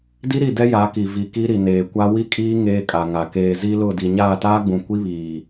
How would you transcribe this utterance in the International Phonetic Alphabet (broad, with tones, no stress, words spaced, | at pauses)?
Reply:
di˦ɾi˦˨dɛ˦ ja˨˦ki˨ vi˨ki˦ɾi˨ neː˨kʷa˦ wi˦kʼiː˦ ŋeː˦kʼa˨ŋa˨ keː˨zi˦lʊ˦˨di˨ ɲaː˦˨taː˦ɡ͡bũ˨ kʷi˦βiː˨